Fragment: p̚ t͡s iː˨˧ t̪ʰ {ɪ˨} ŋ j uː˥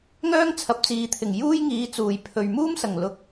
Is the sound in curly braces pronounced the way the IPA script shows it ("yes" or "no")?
no